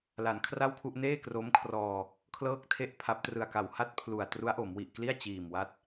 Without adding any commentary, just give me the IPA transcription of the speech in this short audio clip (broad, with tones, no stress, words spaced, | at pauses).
la˩˦nkʰra˥˩wkʰu˥˩ʔ neː˥˩kro˦˥mkʰrɔː˧ | kʰlɤː˥˩k̚tʰe˥˩ʔpʰa˦˥p̚trɯ˧a̯ ka˩˦wha˦˥t̚ pʰlu˨˩a̯ tru˦˥a̯ʔo˩˦mwi˨˩ʔkli˥˩a̯ t͡ɕiː˨˩mwa˦˥t̚